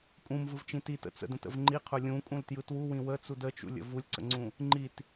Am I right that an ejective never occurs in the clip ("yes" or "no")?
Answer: no